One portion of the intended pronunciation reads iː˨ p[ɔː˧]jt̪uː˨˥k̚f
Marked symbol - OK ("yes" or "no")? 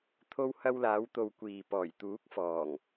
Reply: no